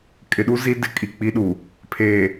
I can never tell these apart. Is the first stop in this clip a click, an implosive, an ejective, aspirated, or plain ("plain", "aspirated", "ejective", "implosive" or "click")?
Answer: ejective